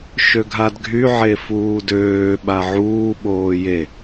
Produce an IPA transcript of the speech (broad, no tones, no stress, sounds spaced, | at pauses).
ʃ ø ɡʱ a d ɡʱ y ʕ e f uː d øː ɓ a ʕ uː ɓ oː j e